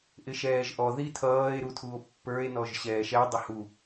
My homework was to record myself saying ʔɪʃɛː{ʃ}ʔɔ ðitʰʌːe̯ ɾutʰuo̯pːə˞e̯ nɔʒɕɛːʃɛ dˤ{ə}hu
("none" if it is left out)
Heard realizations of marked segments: ʒ, ə

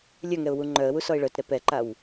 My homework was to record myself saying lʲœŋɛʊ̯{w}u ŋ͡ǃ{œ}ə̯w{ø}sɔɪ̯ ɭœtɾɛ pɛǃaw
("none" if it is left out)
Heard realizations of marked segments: w, œ, u

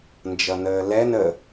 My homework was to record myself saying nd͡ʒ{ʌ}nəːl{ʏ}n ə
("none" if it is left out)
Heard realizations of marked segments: ʌ, ɛ

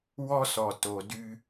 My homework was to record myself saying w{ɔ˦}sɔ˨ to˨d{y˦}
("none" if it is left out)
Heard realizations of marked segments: ɔ˦, y˦

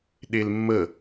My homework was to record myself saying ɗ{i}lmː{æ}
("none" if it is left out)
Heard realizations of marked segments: e, ə

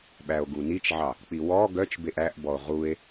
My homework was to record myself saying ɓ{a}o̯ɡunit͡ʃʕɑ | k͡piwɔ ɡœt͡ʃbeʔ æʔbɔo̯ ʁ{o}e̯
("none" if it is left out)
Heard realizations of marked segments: æ, u

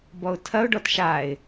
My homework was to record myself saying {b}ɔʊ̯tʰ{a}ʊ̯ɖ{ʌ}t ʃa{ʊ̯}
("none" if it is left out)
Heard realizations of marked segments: b, ɐ, ɔ, ɪ̯

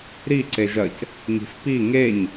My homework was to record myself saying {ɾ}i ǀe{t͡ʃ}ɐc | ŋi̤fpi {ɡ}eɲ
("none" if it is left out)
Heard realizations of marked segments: ɾ, ʒ, ŋ

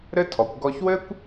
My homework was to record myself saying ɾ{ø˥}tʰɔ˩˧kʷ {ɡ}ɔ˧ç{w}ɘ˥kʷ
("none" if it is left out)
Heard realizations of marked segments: ɘ˥, ɡ, w

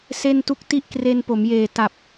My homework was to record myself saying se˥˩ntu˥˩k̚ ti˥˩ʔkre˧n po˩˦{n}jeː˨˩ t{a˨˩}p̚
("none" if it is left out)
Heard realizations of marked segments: m, a˨˩

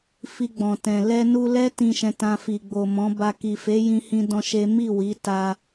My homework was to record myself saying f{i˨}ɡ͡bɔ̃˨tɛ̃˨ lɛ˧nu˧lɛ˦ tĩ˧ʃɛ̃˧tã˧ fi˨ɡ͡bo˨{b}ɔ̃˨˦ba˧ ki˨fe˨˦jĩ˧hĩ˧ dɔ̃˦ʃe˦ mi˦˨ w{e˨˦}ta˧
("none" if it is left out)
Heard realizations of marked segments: i˧, m, i˨˦

